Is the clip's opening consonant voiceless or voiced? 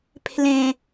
voiceless